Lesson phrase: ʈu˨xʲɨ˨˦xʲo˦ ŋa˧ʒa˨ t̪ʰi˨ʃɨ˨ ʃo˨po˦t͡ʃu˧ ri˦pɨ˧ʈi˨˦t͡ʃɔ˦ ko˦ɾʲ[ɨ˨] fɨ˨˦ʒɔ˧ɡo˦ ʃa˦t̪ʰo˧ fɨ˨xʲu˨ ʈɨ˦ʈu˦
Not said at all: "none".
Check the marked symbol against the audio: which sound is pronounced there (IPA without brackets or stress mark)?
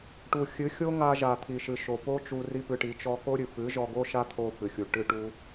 ɨ˨